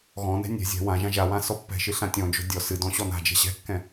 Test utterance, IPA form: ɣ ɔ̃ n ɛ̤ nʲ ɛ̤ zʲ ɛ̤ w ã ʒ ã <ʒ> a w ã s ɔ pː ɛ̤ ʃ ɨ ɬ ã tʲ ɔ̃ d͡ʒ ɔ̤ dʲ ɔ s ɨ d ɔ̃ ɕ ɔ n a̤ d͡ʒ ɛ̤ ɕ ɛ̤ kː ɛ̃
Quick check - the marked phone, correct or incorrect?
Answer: correct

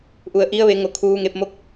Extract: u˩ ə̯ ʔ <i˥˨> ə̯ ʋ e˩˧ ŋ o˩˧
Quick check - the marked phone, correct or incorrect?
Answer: incorrect: i˧˥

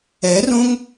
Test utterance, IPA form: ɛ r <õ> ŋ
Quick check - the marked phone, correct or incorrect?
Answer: correct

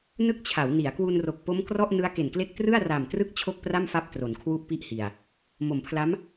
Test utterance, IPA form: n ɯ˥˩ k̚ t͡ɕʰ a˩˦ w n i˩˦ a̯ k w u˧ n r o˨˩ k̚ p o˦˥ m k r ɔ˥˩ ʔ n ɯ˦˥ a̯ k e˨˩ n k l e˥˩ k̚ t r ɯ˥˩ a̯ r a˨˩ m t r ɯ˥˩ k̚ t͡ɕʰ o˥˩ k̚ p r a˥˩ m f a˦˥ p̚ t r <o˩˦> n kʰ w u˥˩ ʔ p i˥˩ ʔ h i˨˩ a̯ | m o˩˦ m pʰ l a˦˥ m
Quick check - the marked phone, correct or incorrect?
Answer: correct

